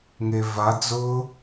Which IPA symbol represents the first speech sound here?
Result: ŋ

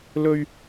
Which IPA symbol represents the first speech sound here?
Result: l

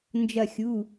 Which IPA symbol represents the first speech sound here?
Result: n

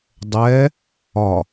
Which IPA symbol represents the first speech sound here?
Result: dˤ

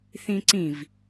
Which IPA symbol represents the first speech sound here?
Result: θ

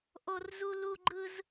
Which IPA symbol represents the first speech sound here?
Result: ʔ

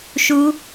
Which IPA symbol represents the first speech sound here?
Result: ʃ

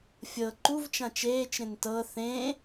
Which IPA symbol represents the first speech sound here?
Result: fʲ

